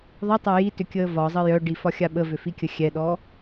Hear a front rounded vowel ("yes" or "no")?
yes